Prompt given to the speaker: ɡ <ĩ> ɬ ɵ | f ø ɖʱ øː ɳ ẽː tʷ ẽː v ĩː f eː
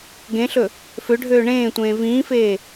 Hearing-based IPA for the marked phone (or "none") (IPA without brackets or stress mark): ẽ